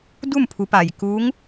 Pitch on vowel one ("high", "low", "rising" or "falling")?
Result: falling